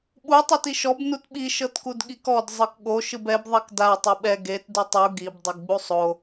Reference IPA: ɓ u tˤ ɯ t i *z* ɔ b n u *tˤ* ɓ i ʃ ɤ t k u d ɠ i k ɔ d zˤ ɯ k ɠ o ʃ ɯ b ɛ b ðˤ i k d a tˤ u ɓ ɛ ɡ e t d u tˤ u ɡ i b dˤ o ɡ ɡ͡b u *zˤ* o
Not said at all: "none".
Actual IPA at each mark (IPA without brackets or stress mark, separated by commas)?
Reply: ʃ, t, sˤ